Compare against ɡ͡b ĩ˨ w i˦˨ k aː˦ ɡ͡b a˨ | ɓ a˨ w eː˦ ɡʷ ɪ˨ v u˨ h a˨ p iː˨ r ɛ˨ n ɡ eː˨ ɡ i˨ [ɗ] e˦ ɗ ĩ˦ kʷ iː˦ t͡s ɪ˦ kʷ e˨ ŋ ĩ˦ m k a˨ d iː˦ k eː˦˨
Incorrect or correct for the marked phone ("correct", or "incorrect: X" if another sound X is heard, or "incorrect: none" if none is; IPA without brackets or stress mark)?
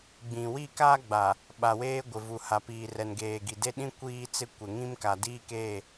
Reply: incorrect: d